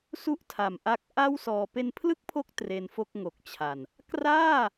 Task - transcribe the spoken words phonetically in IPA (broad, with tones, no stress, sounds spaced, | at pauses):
s u˥˩ ʔ tʰ a˨˩ m ʔ a˦˥ k̚ ʔ a˥˩ w s ɔː˧ p e˧ n pʰ l ɯ˥˩ k̚ pʰ o˦˥ k̚ t r e˧ n f o˥˩ k̚ ŋ o˨˩ k̚ t͡ɕʰ a˨˩ n | k r aː˥˩